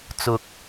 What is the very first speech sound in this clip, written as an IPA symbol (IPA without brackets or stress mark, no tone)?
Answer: t͡s